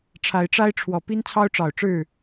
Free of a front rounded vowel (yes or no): yes